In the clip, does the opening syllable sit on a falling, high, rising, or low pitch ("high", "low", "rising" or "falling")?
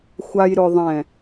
low